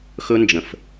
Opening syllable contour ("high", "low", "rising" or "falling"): high